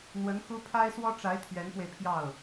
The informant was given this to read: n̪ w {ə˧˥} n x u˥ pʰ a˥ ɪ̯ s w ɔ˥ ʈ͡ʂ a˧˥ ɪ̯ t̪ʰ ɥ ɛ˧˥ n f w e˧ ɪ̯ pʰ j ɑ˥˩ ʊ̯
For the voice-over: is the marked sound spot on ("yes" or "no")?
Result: yes